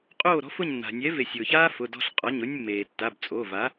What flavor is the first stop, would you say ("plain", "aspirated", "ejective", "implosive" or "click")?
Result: ejective